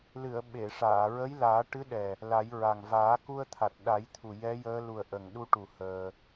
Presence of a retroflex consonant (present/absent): present